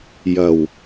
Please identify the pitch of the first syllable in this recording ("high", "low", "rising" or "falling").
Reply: low